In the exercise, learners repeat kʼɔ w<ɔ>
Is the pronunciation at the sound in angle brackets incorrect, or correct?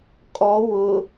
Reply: incorrect